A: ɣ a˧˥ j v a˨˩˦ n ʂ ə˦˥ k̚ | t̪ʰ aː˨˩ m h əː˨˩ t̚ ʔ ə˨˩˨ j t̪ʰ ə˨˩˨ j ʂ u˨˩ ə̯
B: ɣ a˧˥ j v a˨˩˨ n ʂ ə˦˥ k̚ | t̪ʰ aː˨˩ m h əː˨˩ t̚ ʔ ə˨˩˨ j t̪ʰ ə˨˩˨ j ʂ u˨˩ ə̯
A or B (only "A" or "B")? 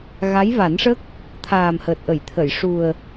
A